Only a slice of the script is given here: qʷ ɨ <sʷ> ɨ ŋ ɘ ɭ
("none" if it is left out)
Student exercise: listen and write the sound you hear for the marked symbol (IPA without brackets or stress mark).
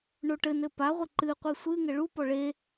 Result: sʷ